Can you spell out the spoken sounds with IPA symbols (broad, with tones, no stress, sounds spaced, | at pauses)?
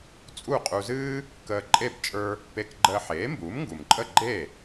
t͡sʼ u˥˩ qʼ u˧ z ɨː˥ | k əː˧ ǃʼ e˥˩ b t͡ʃʼ ə˞˧ | p e˧ k ɡ͡ǃ əː˧ ħ eː˩˥ m b uː˩˥ m ŋ ɡ u˩ m ǃʼ ə˥˩ ɡ͡ǃ e˥˩